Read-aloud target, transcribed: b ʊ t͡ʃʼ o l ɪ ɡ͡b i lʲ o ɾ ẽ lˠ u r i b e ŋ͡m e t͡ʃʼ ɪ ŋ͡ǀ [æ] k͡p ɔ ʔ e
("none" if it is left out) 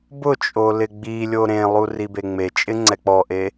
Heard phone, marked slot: ɛ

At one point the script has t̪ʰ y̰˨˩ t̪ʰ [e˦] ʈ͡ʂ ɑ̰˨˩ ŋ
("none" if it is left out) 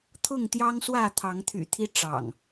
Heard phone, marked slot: i˦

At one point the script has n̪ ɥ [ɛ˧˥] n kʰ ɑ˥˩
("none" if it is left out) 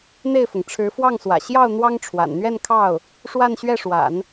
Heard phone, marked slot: ɛ˥˧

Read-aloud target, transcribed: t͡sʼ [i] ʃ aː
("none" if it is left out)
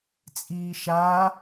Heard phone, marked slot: iː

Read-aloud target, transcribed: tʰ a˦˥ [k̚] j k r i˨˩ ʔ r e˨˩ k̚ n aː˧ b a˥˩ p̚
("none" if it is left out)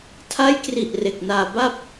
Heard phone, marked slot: none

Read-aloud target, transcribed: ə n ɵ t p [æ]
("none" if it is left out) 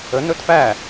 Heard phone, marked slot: æ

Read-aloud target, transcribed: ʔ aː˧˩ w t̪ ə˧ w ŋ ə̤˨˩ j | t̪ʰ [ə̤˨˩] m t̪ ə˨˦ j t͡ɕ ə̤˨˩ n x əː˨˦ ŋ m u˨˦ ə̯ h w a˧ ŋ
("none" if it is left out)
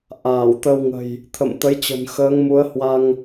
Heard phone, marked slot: ə̰˧˨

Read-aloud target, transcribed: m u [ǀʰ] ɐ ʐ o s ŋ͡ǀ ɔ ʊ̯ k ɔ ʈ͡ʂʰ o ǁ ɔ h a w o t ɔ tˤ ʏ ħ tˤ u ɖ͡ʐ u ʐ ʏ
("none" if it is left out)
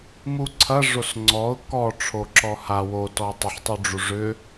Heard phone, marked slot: ǀʰ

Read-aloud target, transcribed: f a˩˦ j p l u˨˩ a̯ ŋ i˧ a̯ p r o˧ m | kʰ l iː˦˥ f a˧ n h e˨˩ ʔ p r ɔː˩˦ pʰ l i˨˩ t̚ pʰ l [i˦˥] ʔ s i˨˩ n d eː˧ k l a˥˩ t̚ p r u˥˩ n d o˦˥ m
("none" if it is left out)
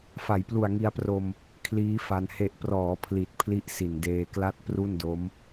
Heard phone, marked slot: i˦˥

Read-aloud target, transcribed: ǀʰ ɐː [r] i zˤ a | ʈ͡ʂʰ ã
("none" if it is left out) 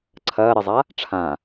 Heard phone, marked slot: ɾ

